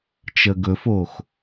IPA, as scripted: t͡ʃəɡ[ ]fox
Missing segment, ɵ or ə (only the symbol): ɵ